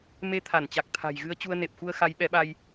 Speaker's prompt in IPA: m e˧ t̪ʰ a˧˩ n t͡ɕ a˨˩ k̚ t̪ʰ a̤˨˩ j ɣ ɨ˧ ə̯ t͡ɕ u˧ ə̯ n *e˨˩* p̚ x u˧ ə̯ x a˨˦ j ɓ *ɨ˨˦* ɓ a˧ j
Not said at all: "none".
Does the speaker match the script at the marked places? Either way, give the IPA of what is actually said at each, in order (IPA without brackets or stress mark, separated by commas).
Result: e˨˩, ɛ˨˦